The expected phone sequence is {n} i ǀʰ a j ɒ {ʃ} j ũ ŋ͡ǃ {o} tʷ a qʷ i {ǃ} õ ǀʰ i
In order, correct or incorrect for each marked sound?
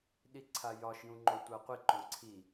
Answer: incorrect: ɗ, correct, correct, correct

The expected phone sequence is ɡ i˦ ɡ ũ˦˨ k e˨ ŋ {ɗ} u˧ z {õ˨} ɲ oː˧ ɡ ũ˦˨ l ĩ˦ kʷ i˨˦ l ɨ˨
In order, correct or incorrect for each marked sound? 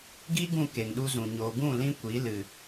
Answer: correct, incorrect: ũ˨

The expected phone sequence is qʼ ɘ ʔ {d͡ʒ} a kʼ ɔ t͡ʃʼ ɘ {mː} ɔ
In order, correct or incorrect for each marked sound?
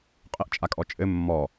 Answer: incorrect: t͡ʃʼ, correct

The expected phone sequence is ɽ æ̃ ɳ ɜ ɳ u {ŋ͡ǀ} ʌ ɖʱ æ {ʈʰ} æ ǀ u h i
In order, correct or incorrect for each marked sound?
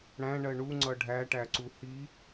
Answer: correct, incorrect: ʈ

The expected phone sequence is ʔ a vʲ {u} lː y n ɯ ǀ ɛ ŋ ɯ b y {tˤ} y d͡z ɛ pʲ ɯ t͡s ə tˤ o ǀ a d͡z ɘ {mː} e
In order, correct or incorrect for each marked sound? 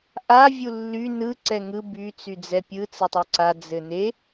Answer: correct, incorrect: t͡s, incorrect: n

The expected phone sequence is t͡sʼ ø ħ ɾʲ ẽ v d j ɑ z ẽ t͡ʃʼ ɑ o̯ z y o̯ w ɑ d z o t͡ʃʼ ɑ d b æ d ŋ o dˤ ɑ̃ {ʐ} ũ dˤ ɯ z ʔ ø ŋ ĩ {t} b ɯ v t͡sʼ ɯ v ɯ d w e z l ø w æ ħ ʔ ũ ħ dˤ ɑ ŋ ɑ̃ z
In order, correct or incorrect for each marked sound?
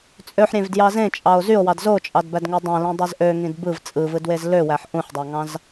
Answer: incorrect: l, incorrect: d

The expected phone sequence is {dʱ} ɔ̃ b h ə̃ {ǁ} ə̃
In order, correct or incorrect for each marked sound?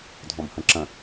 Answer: correct, correct

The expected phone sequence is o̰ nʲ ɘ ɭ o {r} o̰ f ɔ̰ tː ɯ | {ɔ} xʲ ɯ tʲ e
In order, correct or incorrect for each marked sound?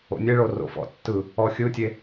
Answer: correct, correct

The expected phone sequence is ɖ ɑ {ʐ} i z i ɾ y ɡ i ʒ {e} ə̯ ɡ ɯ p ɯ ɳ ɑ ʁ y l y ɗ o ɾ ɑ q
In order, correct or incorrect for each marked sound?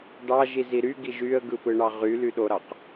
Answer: incorrect: ʒ, incorrect: y

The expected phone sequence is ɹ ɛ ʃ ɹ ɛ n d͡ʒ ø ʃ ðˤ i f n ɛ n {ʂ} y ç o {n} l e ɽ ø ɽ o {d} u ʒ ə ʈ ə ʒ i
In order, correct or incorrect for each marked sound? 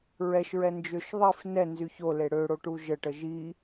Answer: incorrect: z, incorrect: none, incorrect: ʈ

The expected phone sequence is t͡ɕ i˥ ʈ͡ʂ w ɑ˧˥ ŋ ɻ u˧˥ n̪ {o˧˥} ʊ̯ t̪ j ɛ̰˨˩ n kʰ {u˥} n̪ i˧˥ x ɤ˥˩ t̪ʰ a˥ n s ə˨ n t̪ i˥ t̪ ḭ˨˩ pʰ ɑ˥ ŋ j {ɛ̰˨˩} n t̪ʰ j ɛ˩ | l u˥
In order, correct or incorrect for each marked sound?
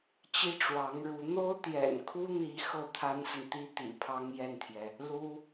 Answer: incorrect: o˥, correct, incorrect: ɛ˥˩

